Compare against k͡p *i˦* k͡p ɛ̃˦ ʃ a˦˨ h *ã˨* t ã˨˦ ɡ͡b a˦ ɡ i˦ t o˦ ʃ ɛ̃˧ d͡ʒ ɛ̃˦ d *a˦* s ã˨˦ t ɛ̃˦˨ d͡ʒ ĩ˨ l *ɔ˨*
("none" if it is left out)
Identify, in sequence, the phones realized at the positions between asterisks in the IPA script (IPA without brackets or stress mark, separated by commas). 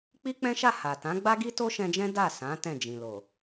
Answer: i˦, a˨, a˦˨, o˨